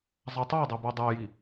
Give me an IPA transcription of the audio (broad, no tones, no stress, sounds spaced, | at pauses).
zˤ a tˤ a dˤ ɛ b o dˤ ɛ j i